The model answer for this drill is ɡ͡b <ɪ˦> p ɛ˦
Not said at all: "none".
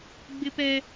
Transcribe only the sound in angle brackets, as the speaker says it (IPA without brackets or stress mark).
ɪ˦